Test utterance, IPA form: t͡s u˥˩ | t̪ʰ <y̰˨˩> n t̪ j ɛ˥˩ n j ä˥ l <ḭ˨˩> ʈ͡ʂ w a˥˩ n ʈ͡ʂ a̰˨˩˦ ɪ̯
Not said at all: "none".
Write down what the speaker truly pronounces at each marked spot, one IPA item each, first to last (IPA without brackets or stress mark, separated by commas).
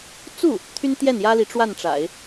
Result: y˥, i˧˥